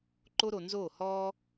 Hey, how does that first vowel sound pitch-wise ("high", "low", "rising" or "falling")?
high